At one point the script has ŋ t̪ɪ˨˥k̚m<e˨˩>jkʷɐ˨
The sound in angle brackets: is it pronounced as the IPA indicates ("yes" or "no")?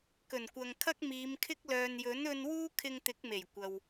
yes